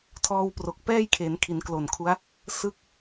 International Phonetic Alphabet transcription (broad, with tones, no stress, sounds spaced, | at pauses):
tʰ ɔː˧ w p r o˨˩ k̚ p ɛː˥˩ j kʰ e˩˦ n kʰ i˩˦ n k l o˨˩ n kʰ u˦˥ a̯ | s ɯ˥˩ k̚